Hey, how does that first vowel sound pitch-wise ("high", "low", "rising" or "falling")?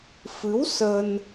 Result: rising